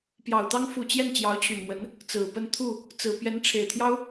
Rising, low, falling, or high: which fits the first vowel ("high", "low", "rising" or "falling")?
low